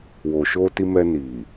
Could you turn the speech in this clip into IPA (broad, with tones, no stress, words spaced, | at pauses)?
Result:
wo˨ʃo˧ti˧mɛ˧ ni˨